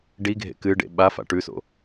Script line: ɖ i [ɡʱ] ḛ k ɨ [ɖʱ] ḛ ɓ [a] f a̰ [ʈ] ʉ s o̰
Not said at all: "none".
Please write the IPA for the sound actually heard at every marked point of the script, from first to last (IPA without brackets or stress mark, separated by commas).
ɡʱ, ɖ, a, ʈ